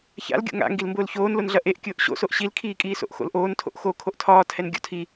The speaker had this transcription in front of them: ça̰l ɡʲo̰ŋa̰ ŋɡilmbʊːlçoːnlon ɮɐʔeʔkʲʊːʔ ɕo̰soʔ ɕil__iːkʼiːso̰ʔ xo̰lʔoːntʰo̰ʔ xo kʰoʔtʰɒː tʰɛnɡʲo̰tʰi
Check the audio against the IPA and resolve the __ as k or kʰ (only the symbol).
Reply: kʰ